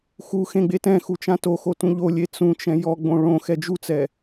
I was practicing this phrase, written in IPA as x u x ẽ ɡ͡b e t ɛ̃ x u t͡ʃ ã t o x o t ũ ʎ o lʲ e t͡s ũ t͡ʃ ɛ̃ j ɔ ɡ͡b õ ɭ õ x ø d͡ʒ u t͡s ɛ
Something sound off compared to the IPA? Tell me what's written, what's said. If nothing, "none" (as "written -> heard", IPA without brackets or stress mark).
ø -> ɛ